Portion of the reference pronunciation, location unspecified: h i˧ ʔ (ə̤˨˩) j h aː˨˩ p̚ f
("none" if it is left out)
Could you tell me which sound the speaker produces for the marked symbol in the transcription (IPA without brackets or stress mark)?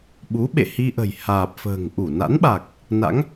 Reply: ə̤˨˩